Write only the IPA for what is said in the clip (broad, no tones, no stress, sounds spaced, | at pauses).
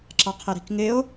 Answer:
ǁ ɑ qʰ ɪ ɾ i̤ k ŋ ɪ o̯